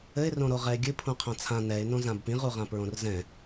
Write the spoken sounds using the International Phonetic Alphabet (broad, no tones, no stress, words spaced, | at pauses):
ɘɪ̯rõɾo ʁɛɪ̯ɡʲɨpʰũqʰã t͡sʰã nɛɪ̯nõ zãbpĩʁuʁã pɹõrzɛ̃